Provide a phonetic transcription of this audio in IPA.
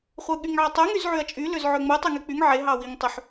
χʷ ɯ ɠ y ŋ ʕ ɑ tˤ ø ŋ y z ʕ y ɐ̯ t͡ʃʼ y l ø z ʕ ø ŋ͡m u tˤ y ŋ e k͡p y ŋ ʕ e ɦ ɑ w i ŋ tˤ y ħ

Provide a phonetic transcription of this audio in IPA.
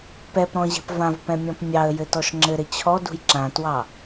p ɛ p ɾ ɔ̃ ʑ ɛ̤ p v ã v p ɛ̃ mʲ ɔ̃ p mʲ ɑ ə̯ j ɘ t ɔ ʃ ŋ͡ǁ ɘ ɾ ɘ t͡ɕʰ ɔ d ṳ j ǁ ã t w ɑ

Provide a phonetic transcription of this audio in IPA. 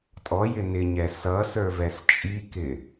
tʼ ɔ j ɪ n ɪ ɲ ɛ s ʌ s ə˞ v ɛ s t͡ʃʼ i k ɪ

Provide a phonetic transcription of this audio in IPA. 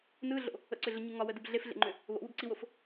n ɯ ɮ o̰ | ə̰ ǀ ʏ ɮ ə ɲ ɯ ŋ ɒ w ə d ɯ b ɮ e f ɮ ḛ ŋ͡ǃ ʏ | β o̰ w u b ǀ i w o f

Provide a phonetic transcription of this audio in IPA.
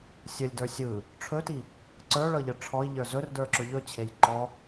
sʲ ə lʲ d ə˞ sʲ ɯ | ʈ͡ʂʰ ɵ t i | ǀ ə˞ ɭ ɤ ʎ ə ʈ͡ʂʰ ɔ i̯ ʎ ə˞ z ɵ r d ə˞ ǁ ɵ ʎ ɵ t͡ɕʰ e j ǃ ɔ

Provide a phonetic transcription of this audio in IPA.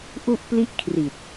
ʔ u˥˩ ʔ p l i˥˩ ʔ kʰ r i˨˩ t̚

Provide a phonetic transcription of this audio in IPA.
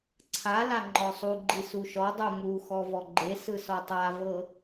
ǀʰ a l a ŋ͡ǃ ɔ sˤ u ɡ͡ǃ i s u ʃ ɔ dˤ u m u x ɔ v ɔ ɡ͡ǃ e s ɯ s ɔ tˤ a v ɤ

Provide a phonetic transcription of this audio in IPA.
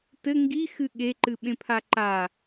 t ɘ ŋ ɡ i x ɨ ɠ e ǃ ɨ ɓ ẽ pʰ a ǃ a

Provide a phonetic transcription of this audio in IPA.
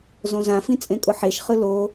z õ z ã f ĩ t͡sʼ ẽ kʼ ʊ ħ e ʃ χ ɯ l o

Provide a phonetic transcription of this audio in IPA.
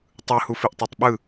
tˤ ɯ h u f i ʔ tˤ e tˤ ɓ ɯ

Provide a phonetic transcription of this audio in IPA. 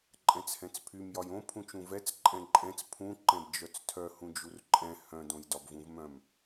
ǃʼ ɛ̃ t͡s h ɛ̃ t͡s pʰ y m j ɒ j õ pʰ ũ t͡ʃ ũ v ɛ t͡s ǃʼ ɛ̃ ǃʼ ɛ̃ t͡s pʰ ũ ǃ ɛ̃ b d͡ʒ œ t͡s tʰ œ h ũ d͡ʒ u r ǃʼ ɛ̃ h œ̃ d õ j d ɒ b v ũ v m œ̃ m

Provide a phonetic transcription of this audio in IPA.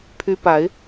pʰ y˧˥ p a˨˩˦ ɪ̯

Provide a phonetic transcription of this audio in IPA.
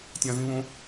tʲ ã z ĩ β õ

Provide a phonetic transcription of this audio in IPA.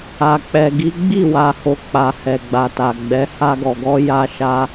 a˨ k͡p ɛ˨ ɡ i˨˦ ɡ͡b i˦˨ w a˨ h o˨ k͡p a˨ h ɛ˨ ɡ͡b a˨ t a˨ ɡ͡b ɛ˨˦ h a˧ ɡ ɔ˨ ɡ ɔ˧ j a˧ ʃ a˧

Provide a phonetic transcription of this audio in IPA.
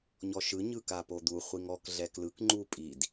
ɲ ɔ ʃ ɯ ɲ ɯ k a p o d̪ u χʷ i ŋ ɔ k ɮ ɛ k l ɯ k ŋ͡ǃ u pʼ i d

